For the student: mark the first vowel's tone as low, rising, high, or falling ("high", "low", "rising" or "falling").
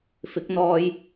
rising